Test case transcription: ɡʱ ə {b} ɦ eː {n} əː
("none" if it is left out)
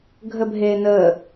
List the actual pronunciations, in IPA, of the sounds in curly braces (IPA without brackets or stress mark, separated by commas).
b, n